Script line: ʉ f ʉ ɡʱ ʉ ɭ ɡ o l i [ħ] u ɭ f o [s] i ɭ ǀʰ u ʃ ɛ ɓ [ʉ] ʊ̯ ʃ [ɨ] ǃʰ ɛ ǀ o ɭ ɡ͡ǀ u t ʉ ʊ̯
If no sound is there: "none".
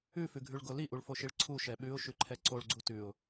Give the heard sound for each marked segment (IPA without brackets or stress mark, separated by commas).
ʔ, ʃ, ʉ, ʉ